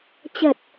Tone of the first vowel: low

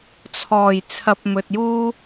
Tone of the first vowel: low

